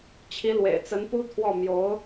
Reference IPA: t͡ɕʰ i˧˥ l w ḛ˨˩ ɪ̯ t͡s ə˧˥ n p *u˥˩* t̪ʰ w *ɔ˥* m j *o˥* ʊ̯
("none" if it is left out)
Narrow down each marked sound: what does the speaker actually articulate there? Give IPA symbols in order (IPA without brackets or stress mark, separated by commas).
u˥, ɔ˥˩, o˧˥